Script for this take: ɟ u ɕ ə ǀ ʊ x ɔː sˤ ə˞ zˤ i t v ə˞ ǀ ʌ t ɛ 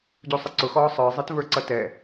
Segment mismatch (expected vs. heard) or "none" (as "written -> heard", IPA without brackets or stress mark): ɕ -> sˤ